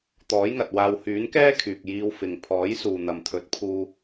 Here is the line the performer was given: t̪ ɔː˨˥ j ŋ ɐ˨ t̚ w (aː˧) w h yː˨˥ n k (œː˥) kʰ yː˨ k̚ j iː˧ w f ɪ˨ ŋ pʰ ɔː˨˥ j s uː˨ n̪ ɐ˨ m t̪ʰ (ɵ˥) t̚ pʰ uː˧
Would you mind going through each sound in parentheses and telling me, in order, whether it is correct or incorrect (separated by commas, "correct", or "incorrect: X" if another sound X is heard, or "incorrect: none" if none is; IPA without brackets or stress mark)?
correct, incorrect: ɛː˥, incorrect: ɵ˨˥